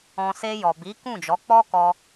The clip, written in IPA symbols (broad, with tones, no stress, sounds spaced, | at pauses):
ɔ̃˨ s e˧ j ɔ˨ b i˨˦ k ũ˦˨ d͡ʒ ɔ˨˦ k͡p ɔ˦ k ɔ˧